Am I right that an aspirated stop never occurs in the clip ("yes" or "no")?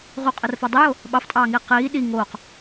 yes